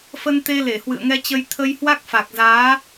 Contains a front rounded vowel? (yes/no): no